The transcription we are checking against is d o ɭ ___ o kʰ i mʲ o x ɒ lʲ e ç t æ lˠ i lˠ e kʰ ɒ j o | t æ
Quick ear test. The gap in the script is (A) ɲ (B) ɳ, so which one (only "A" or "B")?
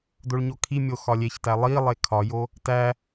A